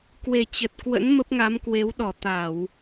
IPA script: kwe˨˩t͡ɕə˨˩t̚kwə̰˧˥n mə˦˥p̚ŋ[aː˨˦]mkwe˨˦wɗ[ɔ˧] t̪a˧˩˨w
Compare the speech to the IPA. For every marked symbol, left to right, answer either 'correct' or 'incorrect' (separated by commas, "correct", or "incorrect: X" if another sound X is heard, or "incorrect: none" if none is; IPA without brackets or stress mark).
incorrect: a˨˦, incorrect: ɔ˧˩